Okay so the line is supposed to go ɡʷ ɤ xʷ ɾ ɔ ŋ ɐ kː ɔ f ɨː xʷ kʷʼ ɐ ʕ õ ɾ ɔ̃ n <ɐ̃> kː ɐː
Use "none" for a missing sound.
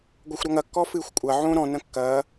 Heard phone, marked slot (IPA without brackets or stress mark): ɐ̃